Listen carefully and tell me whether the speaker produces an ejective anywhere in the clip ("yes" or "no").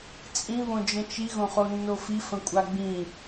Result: yes